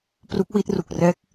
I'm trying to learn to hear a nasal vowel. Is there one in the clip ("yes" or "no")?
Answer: no